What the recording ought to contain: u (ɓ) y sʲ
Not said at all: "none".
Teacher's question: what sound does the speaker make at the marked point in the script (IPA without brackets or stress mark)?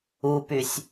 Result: p